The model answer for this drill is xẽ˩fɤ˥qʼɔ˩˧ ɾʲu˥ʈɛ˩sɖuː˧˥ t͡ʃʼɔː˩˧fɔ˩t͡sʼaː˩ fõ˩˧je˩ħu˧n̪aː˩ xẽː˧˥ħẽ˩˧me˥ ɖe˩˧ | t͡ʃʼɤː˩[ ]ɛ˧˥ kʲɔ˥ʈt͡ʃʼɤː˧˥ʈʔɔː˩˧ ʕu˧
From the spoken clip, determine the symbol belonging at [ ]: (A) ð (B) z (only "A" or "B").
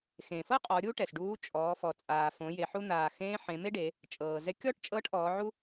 B